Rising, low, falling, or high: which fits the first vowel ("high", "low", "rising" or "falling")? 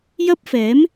high